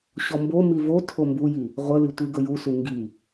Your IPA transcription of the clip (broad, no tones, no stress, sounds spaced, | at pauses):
ɕ ɔ m b o m i v o tʰ o m b u j i | ʁʷ ə l i tʷ i ɡ ə j u s u ŋ ɡ i